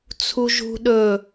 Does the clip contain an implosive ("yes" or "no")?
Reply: yes